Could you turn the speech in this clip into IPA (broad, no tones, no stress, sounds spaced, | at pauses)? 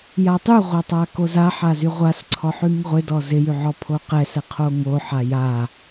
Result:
j a tˤ y ʁʷ a tˤ a k o z a ħ a z y ʁʷ a s ǀʰ ɔ ħ y ŋ ʁʷ ɪ d ɔ z ɪ j y ʕ ɔ pʰ o q ɛ s ɛ qʰ o ŋ o ħ a j a